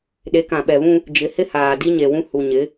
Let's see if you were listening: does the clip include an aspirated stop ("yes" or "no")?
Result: no